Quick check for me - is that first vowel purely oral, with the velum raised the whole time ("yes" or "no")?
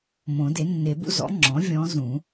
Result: no